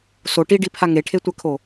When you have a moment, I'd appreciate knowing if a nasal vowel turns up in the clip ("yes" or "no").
no